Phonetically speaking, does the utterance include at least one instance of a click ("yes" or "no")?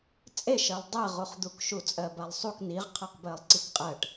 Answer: yes